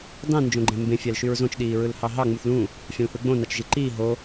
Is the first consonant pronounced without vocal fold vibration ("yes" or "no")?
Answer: no